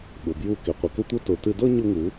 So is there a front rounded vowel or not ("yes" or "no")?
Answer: no